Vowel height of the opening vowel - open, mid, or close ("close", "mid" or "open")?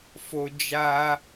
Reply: mid